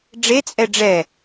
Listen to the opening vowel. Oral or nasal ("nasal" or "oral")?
oral